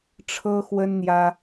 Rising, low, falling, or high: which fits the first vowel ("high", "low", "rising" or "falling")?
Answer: high